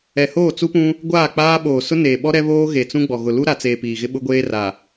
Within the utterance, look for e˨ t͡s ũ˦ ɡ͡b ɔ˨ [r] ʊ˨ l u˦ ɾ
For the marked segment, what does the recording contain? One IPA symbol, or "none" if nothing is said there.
ɣ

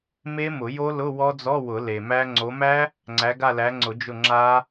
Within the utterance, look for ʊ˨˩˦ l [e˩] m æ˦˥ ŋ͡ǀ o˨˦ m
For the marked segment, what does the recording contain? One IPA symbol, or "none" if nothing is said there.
e˩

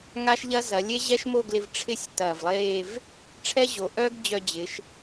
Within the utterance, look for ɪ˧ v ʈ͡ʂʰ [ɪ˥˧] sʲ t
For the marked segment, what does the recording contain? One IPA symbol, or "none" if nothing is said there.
ɪ˥˧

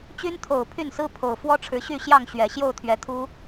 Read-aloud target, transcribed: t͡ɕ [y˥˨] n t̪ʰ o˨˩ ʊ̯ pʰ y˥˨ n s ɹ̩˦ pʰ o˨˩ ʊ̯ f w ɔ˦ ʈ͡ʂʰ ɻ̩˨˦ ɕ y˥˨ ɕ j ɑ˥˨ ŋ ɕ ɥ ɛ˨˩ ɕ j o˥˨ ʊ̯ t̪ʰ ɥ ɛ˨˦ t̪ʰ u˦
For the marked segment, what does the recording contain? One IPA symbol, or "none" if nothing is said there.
y˦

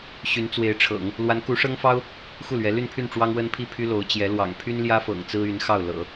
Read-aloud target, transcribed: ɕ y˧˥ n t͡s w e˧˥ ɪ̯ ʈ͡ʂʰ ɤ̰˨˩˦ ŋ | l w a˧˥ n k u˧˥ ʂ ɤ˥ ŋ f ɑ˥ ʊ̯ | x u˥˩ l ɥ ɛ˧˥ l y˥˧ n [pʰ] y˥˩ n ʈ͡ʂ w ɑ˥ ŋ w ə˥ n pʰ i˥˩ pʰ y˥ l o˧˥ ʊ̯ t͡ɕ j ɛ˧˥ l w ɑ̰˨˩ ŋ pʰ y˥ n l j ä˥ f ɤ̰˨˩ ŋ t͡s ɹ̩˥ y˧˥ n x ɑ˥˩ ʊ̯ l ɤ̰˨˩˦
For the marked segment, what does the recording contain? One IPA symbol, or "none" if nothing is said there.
pʰ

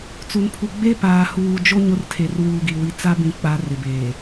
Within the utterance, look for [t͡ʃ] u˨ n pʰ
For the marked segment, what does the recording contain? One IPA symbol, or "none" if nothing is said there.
t͡s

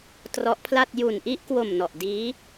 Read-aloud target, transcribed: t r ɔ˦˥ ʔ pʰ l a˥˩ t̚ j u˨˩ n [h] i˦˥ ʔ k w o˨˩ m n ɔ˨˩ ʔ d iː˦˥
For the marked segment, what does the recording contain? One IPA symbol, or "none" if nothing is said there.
ʔ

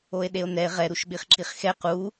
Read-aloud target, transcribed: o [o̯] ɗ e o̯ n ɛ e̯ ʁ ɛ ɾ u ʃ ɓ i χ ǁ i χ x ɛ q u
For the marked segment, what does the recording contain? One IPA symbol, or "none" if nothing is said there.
e̯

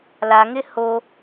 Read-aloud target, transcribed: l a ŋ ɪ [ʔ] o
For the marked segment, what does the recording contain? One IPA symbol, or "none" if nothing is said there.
h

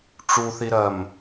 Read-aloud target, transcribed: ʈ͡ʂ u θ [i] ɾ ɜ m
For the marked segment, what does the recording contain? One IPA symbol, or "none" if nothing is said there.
i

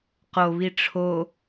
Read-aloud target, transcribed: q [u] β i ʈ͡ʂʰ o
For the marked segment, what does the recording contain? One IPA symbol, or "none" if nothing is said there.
o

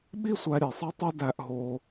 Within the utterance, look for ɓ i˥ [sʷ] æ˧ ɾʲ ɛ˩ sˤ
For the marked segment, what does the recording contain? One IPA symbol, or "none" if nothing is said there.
sʷ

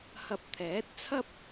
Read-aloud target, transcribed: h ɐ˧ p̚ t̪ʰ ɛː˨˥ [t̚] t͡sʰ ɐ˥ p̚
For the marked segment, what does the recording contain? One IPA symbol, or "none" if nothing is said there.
t̚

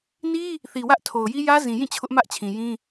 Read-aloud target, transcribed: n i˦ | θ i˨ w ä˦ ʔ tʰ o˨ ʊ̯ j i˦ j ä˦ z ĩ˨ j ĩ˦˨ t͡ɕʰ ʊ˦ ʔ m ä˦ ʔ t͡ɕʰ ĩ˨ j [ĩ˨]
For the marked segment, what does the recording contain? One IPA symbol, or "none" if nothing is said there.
ĩ˦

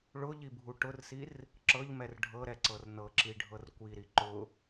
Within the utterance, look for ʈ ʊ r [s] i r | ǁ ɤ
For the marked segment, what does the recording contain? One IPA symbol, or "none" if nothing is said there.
s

